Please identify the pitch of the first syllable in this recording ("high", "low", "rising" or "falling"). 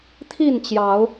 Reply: falling